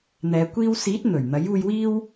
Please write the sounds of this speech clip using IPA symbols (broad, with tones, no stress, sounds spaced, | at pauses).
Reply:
n̪ ɛː˨˧ kʷ iː˧ w s iː˨˥ t̚ n̪ ɵ˨˩ ɥ n̪ ɐ˨˥ j uː˧ j w iː˥ w